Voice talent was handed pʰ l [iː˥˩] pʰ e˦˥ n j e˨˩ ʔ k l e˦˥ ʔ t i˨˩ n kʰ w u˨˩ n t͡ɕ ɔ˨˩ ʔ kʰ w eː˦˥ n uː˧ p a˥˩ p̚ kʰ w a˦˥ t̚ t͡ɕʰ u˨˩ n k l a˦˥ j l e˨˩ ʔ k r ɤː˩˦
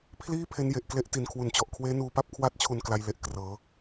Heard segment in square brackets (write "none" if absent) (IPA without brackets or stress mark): iː˥˩